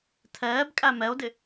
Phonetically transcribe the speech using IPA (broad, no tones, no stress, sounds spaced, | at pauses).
tʰ ɛː b kʼ æ m ɛ o̯ d ɪ